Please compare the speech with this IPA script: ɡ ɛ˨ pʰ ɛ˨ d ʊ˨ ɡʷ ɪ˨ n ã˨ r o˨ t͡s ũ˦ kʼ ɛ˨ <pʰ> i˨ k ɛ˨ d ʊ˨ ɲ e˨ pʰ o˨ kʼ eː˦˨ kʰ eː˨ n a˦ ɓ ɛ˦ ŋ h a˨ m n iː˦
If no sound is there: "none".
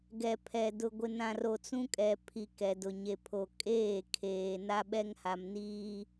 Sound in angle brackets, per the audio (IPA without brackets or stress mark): pʰ